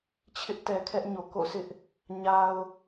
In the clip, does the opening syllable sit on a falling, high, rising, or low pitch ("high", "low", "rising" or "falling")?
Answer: high